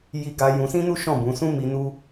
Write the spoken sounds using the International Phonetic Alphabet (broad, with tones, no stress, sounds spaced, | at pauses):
j i˧ ɡ a˧ j ũ˧ s ĩ˦ n u˦ ʃ ɔ̃˦˨ b ũ˨˦ s ũ˦ m i˧ n u˦